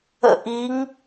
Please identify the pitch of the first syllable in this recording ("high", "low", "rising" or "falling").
falling